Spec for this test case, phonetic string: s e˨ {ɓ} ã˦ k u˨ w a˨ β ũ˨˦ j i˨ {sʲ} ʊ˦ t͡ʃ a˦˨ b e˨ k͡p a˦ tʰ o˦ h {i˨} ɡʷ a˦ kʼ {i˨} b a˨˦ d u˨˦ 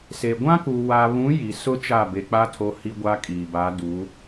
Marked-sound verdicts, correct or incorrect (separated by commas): incorrect, incorrect, incorrect, incorrect